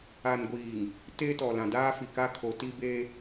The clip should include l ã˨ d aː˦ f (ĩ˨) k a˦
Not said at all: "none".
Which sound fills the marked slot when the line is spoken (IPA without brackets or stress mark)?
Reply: i˨